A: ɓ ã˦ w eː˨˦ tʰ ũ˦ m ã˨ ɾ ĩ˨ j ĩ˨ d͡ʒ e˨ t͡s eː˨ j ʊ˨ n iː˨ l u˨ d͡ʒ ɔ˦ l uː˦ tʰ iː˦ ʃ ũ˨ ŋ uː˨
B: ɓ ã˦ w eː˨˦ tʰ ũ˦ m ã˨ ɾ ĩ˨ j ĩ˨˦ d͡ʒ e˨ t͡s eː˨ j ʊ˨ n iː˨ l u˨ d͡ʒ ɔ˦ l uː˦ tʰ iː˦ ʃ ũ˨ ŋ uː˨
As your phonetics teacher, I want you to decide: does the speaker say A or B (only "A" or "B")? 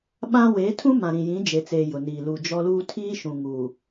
B